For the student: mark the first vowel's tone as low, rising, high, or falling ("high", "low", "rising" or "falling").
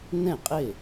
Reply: falling